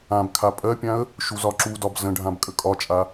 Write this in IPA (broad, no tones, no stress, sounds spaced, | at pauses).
ã b kʰ a pʼ ɜ pʲ ã ə̯ | ʃ u z ɒ ǁ u d ɒ b z ə̃ ɖʱ ã b kʼ ə kʼ ɒ t͡ʃʼ a